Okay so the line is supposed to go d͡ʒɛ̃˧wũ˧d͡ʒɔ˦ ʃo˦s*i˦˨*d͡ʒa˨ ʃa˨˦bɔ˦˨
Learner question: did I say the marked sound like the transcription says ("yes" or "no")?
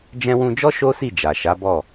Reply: yes